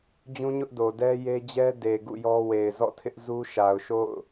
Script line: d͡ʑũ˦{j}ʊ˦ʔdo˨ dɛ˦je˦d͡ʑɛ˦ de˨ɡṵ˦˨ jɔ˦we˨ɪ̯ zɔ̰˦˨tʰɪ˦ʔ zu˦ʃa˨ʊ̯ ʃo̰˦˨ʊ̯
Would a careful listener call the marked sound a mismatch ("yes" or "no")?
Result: yes